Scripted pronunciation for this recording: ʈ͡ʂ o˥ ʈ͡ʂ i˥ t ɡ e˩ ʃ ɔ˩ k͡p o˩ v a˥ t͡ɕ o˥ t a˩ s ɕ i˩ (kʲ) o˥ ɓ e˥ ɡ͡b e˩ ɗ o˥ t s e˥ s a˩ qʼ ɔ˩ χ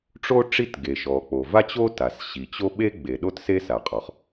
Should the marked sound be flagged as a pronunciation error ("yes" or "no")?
yes